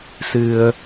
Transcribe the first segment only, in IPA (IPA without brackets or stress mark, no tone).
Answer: s